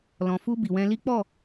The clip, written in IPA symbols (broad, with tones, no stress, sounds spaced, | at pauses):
l ɔ̃˨ f u˧ b i˨ w ɛ̃˧ l i˦ k͡p ɔ˦˨